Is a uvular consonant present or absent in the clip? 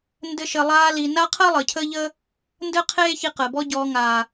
present